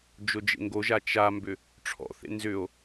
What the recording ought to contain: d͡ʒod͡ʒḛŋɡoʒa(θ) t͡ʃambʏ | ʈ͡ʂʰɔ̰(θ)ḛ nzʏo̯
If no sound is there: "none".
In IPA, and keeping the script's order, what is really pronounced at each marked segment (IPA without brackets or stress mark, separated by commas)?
none, θ